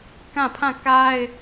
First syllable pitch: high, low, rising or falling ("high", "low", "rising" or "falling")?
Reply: falling